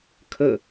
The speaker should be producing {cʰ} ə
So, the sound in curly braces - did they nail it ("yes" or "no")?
no